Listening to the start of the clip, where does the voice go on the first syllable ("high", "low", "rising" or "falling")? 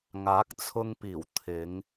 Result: rising